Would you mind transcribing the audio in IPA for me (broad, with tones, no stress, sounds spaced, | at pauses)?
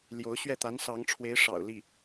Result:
l j o˧˥ ʊ̯ ɕ ɥ ɛ˥˩ t̪ a˧˥ n s ɑ˧˥ ŋ ʈ͡ʂʰ w e˧˥ ɪ̯ ʂ ɑ̰˨˩ ʊ̯ l i˥˩